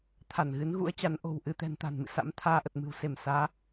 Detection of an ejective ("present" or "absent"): absent